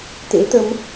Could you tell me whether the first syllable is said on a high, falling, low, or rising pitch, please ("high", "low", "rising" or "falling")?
rising